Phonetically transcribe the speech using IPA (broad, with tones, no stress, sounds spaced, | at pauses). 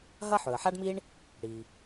ɦ ɐ˥ ħ ɵ˩ ə̯ ħ a˥ ɖ m i˥ ɳ | ɽ i˩